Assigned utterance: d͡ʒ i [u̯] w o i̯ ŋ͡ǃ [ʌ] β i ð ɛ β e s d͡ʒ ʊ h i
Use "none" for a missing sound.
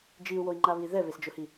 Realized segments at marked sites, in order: u̯, a

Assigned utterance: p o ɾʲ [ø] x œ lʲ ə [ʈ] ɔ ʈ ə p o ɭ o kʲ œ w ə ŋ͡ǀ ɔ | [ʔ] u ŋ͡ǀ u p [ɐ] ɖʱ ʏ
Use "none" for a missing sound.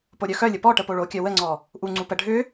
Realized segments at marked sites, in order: œ, p, ʔ, ə

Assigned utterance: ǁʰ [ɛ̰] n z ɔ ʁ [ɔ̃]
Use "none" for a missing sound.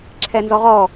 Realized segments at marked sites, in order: ɛ, ɔ

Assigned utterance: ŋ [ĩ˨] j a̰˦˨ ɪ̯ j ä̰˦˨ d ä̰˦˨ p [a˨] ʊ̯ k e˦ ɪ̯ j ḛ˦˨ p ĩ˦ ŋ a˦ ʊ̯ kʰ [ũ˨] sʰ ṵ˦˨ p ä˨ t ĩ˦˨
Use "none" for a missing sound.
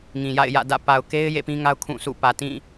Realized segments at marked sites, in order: ĩ˨, a˨, ũ˦˨

